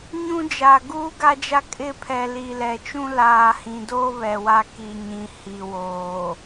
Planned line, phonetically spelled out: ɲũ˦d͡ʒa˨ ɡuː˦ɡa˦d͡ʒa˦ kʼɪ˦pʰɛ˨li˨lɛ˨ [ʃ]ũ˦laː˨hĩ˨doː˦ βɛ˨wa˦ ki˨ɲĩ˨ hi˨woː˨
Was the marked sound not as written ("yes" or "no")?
yes